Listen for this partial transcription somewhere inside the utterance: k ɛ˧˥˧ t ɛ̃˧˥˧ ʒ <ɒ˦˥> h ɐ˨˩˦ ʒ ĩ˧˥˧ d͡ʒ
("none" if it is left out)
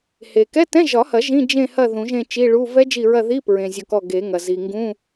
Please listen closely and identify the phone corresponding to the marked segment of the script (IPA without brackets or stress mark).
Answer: ɒ˨˩˦